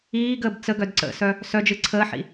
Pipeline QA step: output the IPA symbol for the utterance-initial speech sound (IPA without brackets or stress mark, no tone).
iː